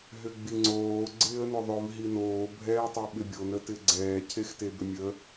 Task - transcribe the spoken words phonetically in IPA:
ɦʏɡ͡biŋ͡ǀoː ɡ͡ǀɪːə̯nʏðˤʏv ɦinoː bʱɛːtˤeɓɪbʲon ətɪɡ͡ǀɛː cʰextebʏmʲə

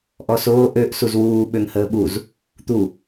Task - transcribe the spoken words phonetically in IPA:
ʔɔsoː ʔøʔ suzwuː ɓøŋhəːɓuz | t̪u

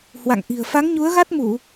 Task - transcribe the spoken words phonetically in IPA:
hwa̰˧˨ŋʔi̤˨˩ə̯ fa˨˦ŋɲu˨˦ə̯ɣa˦˥t̚mu˧˩˨

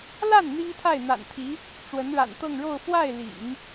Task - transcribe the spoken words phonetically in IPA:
la˥˩n n̪i˥ŋt̪ʰa˥˩ɪ̯n̪a̰˨˩nt̪ʰi˧˥ | ʈ͡ʂwə˧˥nɻa̰˨˩nt̪ɤ˥˧ŋɻo˥˧ʊ̯ fwa˥˩ɪ̯lḭ˨˩˦ŋ

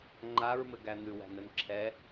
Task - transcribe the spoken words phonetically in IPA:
ŋ͡ǃaɹmɘɡæ n̪ʉwæ̤nɘn ǁʰɛ

